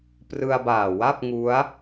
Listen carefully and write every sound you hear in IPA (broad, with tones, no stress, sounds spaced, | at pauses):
p r ɯ˧ a̯ b aː˨˩ w a˥˩ p̚ ŋ u˦˥ a̯